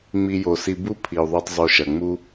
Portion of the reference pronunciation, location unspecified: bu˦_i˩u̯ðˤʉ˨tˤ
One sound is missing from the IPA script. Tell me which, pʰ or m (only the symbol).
pʰ